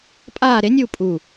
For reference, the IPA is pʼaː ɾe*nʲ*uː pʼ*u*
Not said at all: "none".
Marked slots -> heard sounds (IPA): nʲ, u

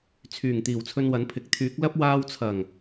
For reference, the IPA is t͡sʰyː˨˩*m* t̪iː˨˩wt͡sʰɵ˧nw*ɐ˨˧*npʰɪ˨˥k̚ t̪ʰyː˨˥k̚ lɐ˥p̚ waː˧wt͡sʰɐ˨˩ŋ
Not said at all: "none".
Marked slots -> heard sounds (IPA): ŋ, ɐ˨˥

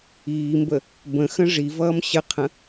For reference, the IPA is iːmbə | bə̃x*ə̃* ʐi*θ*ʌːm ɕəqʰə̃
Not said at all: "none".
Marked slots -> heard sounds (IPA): ə̃, v

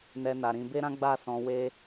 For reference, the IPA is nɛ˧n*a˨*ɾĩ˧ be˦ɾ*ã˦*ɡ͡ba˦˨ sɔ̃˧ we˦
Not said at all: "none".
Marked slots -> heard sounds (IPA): a˨, ã˦

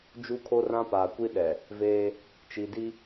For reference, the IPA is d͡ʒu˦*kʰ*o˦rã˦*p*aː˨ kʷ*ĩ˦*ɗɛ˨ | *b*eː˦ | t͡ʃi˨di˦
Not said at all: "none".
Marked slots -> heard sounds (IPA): kʰ, p, i˦, v

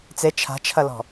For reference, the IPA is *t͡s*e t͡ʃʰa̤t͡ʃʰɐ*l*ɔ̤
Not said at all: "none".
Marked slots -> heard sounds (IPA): t͡s, l

